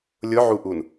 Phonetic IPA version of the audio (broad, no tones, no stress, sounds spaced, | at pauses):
lʲ ʊ ʕ u ʔ u n